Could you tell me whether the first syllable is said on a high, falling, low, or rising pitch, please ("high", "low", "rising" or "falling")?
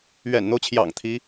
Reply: low